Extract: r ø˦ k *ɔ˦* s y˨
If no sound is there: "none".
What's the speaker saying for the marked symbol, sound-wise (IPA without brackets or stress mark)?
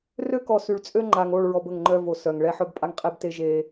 ɔ˨